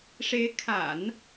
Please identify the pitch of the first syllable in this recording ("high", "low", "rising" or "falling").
rising